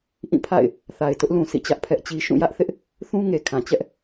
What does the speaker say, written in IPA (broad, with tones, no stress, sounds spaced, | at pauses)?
ʔ ĩ˦˨ pʰ a̰˦˨ ɪ̯ | θ a˨ ɪ̯ t ʊ˦ ʔ l ũ˨ s ḭ˦˨ t͡ɕ ä˦ ʔ pʰ ɛ˦ ʔ t͡ɕ i˦ ʃ ũ˦˨ j ä˦ ʔ θ ɪ˦ ʔ | θ ũ˦ ŋ e˨ kʰ ã˨ t͡ɕ ɛ˦ ʔ